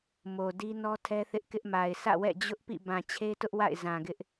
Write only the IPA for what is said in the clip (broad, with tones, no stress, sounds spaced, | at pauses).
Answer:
m o˨ d i˦ n ɔ˦ tʰ ɛ˦ θ ɪ˦ ʔ k ɪ˦ ʔ m a˨ ɪ̯ s ä̰˦˨ w ɛ̰˦˨ d͡ʑ ʊ˦ ʔ p ḭ˦˨ b ã˨ t͡ɕʰ e˦ t ʊ˦ ʔ w a̰˦˨ ɪ̯ z ã˨ ɡ ɪ˦ ʔ